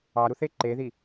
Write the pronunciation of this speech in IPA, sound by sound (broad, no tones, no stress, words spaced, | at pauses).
ɑɾuθe ǃeði